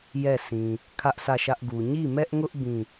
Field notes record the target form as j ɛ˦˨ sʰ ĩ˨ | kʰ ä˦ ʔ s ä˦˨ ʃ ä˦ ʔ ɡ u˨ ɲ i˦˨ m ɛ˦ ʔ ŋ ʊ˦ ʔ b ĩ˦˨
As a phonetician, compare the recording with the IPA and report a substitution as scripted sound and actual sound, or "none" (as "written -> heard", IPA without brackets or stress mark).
none